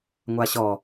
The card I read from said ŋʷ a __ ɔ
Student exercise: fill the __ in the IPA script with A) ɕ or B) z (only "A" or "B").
A